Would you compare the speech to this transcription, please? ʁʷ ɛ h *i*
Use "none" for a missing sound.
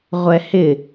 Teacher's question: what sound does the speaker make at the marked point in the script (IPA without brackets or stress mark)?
ɪ